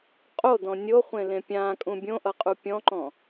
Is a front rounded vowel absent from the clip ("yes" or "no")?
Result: yes